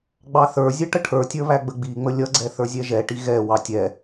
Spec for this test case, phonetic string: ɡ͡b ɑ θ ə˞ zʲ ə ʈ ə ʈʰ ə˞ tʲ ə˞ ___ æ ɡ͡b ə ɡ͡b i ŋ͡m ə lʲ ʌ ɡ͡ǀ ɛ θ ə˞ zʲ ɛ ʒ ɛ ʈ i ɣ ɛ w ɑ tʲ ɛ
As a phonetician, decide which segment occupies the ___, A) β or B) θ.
A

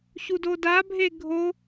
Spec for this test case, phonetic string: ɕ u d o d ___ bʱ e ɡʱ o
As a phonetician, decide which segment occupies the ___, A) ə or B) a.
B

